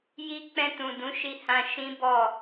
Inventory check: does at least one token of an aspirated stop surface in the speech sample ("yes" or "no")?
no